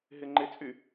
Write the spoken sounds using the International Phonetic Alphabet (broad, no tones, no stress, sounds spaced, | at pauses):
ɦ ɪ ŋ͡ǃ ɪ t͡sʼ y